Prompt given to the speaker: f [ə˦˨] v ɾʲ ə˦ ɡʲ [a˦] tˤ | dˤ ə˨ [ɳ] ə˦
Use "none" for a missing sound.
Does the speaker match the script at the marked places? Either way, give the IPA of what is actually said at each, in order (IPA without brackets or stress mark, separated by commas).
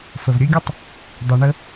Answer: ə˨, ə˦, ɳ